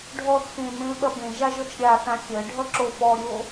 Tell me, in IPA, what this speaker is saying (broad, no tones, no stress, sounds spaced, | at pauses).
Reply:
ɖʱ ɔ θ x ẽ m ẽ l ɓ ɐ b ẽ ʒ a ʒ ɔ t͡ʃ ɾʲ a θ ã xʲ ɜ ɖʱ ʌ ǁ o f ɔ ɾʲ o